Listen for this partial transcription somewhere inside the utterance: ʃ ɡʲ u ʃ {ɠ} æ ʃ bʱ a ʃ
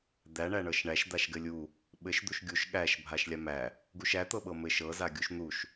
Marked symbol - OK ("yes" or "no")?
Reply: yes